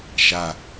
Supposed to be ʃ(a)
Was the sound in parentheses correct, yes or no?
yes